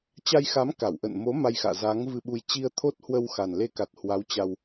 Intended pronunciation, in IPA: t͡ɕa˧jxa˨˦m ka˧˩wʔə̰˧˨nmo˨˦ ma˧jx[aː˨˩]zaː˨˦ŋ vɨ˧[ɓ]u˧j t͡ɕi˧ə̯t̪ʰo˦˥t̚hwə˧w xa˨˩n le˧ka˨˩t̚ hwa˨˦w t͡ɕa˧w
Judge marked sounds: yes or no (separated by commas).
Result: no, yes